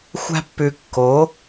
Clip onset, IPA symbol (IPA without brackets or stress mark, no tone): xʷ